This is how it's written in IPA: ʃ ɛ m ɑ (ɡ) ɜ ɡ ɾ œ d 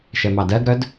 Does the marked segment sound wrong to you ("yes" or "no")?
yes